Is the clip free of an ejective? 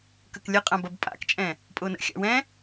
no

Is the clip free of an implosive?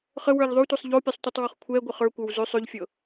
yes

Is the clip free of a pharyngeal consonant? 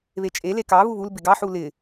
no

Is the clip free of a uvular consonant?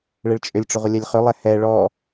no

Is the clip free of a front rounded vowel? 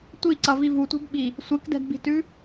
yes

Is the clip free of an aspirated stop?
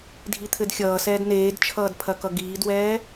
no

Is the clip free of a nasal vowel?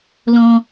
no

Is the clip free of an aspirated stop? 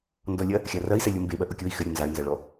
yes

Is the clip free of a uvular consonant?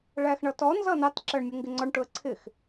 yes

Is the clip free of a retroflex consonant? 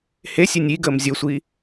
yes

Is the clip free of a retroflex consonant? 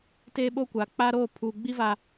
yes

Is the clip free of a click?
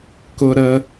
yes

